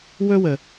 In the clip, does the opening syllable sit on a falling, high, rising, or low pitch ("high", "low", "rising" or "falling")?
high